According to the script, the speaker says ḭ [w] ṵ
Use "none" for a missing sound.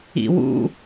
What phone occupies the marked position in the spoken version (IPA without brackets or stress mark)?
w